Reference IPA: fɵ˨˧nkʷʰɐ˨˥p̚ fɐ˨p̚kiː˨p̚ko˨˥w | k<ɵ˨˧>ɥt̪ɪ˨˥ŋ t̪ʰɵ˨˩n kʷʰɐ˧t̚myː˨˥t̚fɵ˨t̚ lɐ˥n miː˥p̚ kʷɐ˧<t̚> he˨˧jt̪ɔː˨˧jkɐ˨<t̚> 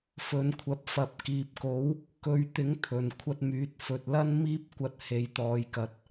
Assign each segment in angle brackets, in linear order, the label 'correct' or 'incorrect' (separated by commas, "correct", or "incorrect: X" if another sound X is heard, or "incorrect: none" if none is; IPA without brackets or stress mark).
correct, correct, correct